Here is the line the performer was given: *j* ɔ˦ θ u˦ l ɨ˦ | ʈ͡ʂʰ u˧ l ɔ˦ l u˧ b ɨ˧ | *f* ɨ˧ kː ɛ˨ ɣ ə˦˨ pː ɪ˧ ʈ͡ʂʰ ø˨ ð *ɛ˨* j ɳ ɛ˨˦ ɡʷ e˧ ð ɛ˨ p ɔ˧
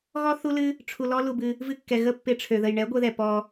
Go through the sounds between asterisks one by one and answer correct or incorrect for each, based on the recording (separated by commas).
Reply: incorrect, incorrect, incorrect